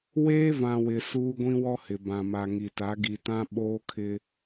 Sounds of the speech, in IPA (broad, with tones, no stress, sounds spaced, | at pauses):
w eː˦ v ã˨ w ɪ˨ s uː˦ ɡʷ ĩ˦ w ɔ˦ h ɪ˨ b ã˨ m a˨ ŋ i˨ t a˨˦ ɡ i˨ t ã˦ ɓ oː˦ kʰ ɪ˦